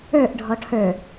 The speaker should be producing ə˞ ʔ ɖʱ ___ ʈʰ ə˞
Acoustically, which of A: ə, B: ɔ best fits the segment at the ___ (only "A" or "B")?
B